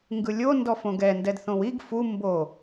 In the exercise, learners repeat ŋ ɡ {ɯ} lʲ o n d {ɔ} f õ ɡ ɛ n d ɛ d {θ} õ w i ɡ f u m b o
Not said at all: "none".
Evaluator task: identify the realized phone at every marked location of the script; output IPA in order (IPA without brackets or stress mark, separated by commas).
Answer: ɯ, ɔ, θ